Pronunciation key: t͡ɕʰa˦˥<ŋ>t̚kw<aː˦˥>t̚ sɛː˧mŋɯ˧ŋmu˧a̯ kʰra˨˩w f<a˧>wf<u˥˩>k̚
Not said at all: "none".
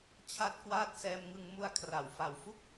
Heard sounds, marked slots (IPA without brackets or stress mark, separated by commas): none, aː˦˥, a˨˩, u˥˩